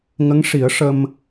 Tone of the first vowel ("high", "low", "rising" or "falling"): rising